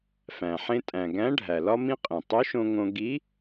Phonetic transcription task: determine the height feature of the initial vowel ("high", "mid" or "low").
low